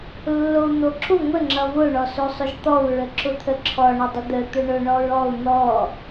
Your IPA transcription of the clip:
lː o u̯ n̪ o ǁ ʊ ŋʷ ə ŋ͡ǁ ʌ v ʊ ɳ ɔ s o sˤ ʊ ʒ t̪ ɔ u̯ ɹ ə ǁ ʊ t̪ʰ ə ǁʰ ɔ ɳ ʊ dˤ ə d̪ ə t̪ ʊ ɳ ʊ ɳ ɔ ɹ ɔ u̯ n̪ ɔ

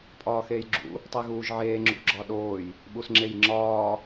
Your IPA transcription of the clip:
pʼ ɒː x eː j ɡ͡ǁ ṵ | tˤ e ɣ uː ʒ ʕ eː ŋ͡ǁ ṵ ɡ͡ǁ ɒ ɗ oː j | ɓ u s ŋ͡ǁ e j ŋ͡ǁ ɒː

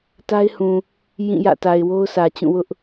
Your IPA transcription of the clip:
t a˦ ɪ̯ h ũ˨ | j ĩ˦˨ j ä̰˦˨ t a˨ ɪ̯ w o˦ ʊ̯ s ä˨ t͡ɕ ũ˦˨ w ʊ˦ ʔ

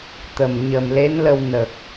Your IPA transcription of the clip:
t̪ ə˨˩ m ɲ ə˨˩ m l e˧˥ n l ə˧ w n ə˨˩ k̚

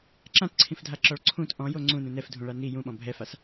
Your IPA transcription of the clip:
ǁ ã t ǀʰ ĩ f dʱ a ǁ ɔ ɭ ǀʰ ũ t ʔ ɔ̃ j o ŋ͡ǀ ũ n ũ n ɛ f dʱ ũ ɭ a n i j ũ ɓ ɔ̃ bʱ ɛ f a s

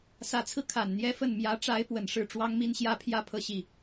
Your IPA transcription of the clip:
s ä˧˥ t͡sʰ ɹ̩˧ kʰ a˨˩ n n̪ j ɛ˥ f ə˥˩ n m j ä˧˥ ʈ͡ʂ a˧˥ ɪ̯ p w ə˨˩ n ʂ ɻ̩˥˩ ʈ͡ʂ w ɑ˥ ŋ m i˥ n ɕ j ä˥ pʰ j ä˥˧ pʰ ɤ˥˧ ɕ i˥˩

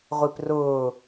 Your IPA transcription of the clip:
ʁʷ i p r ʊː

